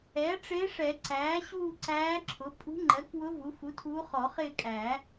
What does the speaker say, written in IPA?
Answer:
ɛː˩˥ ʈ͡ʂɪː˧˥ʂɛ˨˩˦ǀæː˩˥ ɕuː˥˧ǀæː˧˥ǁʰʊ˩˥ pʼṳ˧˥ŋ͡ǃɜ˩˥kwʊ˧˥ vu˩˥ fu˩˥ tʰuː˧˥χɔ˨˩˦χɪː˥˧ kʼæː˨˩˦

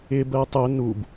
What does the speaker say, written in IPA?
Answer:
ɪ bɜtˤʊ nub

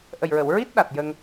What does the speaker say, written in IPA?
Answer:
ʔə˨˩jɹə˨˩˨w ɹi˦˥t̚ɗa˨˩t̚ jə˧ŋ

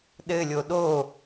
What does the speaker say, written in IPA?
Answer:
ɗɘlʲo ɗo

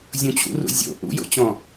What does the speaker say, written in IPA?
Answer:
zʲũt͡ɕṵrṵ zʲo̰ ʔṵjo̰t͡ɕɔ̃

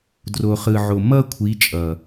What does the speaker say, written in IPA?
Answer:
dro˨χɯ˨ʕo˨ mʌ˦kʷʰi˨˦ t͡ʃʼʌ˨

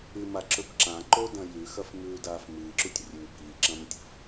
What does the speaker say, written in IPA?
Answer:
ʉmaǁɵb ǁãǃodɐ̃ jʉxɐfmʉːdaːf mɨːǁutʲ rʲʉ biːǁɐ̃mtʲṳf

